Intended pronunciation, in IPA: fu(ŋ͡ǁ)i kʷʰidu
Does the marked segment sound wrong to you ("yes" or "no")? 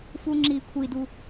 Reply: no